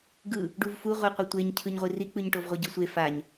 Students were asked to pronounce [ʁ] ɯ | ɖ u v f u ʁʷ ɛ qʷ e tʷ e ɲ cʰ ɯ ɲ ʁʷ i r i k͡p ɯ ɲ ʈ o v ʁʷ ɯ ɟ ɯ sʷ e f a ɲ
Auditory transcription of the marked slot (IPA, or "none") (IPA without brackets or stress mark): ɡ